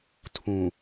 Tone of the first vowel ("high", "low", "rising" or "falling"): low